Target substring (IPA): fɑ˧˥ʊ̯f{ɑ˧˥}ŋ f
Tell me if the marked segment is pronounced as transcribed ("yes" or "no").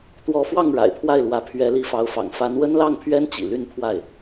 no